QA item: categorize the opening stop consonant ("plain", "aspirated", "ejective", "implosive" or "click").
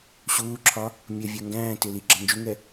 click